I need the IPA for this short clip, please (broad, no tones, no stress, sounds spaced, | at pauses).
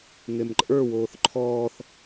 ŋ e m ǃʼ ə˞ w oː θ ǃʰ ɔː θ